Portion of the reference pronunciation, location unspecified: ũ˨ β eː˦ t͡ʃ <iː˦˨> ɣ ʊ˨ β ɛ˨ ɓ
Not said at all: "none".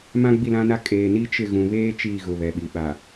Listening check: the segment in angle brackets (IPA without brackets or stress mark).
iː˦˨